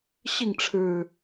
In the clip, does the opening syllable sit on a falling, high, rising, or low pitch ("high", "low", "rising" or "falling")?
falling